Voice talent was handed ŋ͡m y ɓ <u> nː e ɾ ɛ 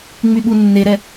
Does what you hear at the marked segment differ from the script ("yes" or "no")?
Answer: no